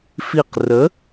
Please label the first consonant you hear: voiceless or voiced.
voiceless